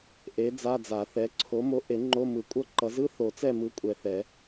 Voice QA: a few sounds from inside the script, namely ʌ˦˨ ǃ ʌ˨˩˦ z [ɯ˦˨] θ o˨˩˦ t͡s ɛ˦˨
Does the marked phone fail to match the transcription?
yes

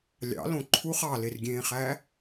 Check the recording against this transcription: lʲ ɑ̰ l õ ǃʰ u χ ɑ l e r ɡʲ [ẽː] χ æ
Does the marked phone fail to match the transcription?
no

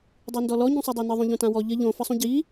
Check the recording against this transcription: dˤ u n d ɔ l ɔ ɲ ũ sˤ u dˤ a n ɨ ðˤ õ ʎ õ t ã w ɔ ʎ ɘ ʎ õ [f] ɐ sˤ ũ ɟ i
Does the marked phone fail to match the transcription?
no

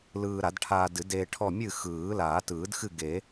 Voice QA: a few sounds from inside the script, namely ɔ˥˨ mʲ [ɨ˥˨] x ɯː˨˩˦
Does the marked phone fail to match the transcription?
no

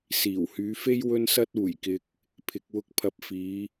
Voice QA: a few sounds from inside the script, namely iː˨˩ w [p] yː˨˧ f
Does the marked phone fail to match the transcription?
yes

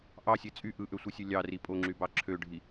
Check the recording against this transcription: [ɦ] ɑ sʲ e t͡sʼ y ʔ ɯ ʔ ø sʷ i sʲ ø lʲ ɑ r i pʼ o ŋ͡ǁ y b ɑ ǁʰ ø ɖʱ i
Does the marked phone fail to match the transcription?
yes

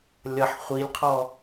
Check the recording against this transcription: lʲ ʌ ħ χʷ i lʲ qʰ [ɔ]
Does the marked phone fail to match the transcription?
no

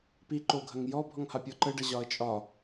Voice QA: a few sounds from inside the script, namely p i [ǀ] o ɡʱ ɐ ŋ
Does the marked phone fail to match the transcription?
yes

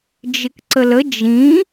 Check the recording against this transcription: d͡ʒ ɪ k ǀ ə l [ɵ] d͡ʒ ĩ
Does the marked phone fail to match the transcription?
yes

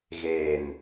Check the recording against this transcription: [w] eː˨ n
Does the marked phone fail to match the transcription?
yes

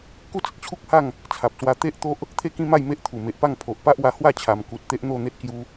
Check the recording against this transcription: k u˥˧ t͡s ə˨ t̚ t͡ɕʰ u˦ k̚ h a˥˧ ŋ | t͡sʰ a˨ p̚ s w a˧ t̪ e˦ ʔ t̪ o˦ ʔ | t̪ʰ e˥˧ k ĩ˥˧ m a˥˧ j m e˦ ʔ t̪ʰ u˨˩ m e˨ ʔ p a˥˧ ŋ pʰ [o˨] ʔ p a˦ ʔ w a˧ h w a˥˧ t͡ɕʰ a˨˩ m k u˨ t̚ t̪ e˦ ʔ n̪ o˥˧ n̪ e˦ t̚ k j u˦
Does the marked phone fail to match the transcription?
no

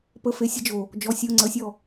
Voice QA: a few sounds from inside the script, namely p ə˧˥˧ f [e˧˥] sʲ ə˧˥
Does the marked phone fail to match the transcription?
no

